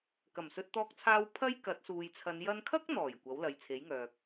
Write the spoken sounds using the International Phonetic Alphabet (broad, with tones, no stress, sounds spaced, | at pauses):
k ɐ˨˩ m s ɵ˧ t̚ t̪ ɔː˧ k̚ t͡sʰ aː˧ w pʰ ɐ˥ j k ɐ˨˥ t̚ s uː˨ j t͡sʰ ɐ˨˧ n j ɐ˧ n kʰ ɐ˥ k̚ n̪ ɔː˨˩ j kʷ ɐ˨˥ w l ɐ˨ j t͡sʰ e˨˥ j ŋ œː˨ k̚